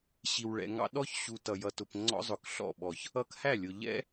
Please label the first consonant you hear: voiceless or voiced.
voiceless